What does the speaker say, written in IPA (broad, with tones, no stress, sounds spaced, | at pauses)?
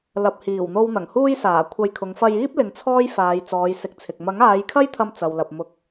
l ɐ˨ p̚ h iː˨˩ w n̪ o˧ w n̪ ɐ˨˩ ŋ h uː˥ j s aː˨˩ kʷʰ ɐ˧ j kʰ ʊ˨˧ ŋ f ɐ˧ j iː˥ p̚ l ɪ˨˧ ŋ t͡sʰ ɔː˥ j f aː˨˧ j t͡s ɔː˨˧ j s ɪ˨˥ k̚ t͡sʰ ɪ˨ k̚ m ɐ˨˥ ŋ aː˨˧ j kʰ ɐ˥ j t̪ʰ ɐ˧ m t͡s ɐ˨ w l ɐ˨ p̚ m ʊ˧ k̚